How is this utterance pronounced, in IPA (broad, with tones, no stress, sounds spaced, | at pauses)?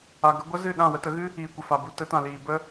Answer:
a˧ ɡ ə˦ ɡʷ ə˦ z ɨ˦˨ ɗ ã˦˨ w ə˧ t ə˨˦ ɣ ɨ˦ | iː˨ kʷ ə˨ f a˨ b u˧ t ə˨˦ t ã˨ l iː˨ b ə˦